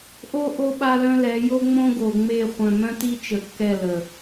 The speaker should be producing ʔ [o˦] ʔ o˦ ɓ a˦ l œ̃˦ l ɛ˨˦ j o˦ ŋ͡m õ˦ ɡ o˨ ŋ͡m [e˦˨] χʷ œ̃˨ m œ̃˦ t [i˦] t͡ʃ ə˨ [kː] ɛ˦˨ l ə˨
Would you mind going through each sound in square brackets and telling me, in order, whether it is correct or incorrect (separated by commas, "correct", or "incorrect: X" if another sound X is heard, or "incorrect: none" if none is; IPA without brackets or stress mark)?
correct, correct, correct, correct